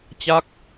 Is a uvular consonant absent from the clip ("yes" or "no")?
yes